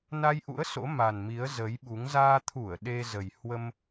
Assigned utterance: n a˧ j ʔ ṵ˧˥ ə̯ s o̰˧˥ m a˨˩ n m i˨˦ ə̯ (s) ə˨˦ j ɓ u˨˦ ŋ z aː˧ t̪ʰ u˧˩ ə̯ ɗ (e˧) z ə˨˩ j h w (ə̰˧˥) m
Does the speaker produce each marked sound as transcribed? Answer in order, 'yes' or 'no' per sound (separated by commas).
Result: no, yes, no